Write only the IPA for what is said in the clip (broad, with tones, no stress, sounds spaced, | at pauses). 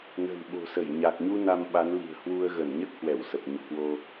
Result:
n ə̤˨˩ n ɓ o̤˨˩ s ə˧˩ j ɲ a˨˩ k̚ ɲ u˧ n a˧ m ɓ a˨˦ n l i̤˨˩ ə̯ h w u˧ ə̯ ɣ ə˧˩ n ɲ ə˦˥ t̚ h w ɛ˧˩ w s ə˨˩ p̚ ɲ o̰˧˨ k w o˧